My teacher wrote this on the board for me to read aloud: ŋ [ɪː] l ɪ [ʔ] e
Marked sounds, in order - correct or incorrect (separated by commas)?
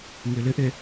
correct, correct